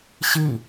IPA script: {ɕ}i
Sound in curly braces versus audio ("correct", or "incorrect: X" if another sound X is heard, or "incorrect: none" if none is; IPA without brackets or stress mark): correct